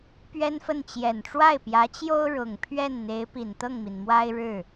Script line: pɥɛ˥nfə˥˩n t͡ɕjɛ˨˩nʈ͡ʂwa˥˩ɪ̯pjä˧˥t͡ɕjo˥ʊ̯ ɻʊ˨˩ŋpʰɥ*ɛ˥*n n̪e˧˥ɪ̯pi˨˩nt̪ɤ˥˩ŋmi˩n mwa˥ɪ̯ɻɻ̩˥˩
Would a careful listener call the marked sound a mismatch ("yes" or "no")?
yes